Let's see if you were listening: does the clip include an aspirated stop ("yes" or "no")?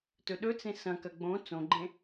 no